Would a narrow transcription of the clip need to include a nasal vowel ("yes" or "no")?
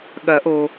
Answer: no